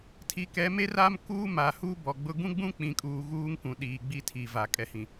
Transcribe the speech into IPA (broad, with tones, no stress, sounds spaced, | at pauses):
tʰ i˨˦ k ɛ˨˦ m eː˦ r aː˦ m k uː˦ m a˨ h uː˦ b ɔ˨ ɡ͡b ʊ˦ ɡ ũ˦ ɡ͡b ũ˦ k͡p ĩ˨ kʼ uː˨ ɣ uː˦ ŋ k ũ˨ ɗ iː˨ ɡ͡b i˦ tʰ i˨ v a˨ kʼ ɛ˨ h ĩ˨